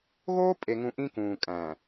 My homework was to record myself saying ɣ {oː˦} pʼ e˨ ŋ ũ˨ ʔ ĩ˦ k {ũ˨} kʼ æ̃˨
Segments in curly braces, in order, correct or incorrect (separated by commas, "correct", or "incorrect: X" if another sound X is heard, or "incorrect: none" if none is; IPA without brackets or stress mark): correct, incorrect: ũː˨